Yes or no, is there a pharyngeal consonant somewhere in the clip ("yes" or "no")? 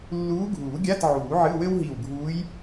yes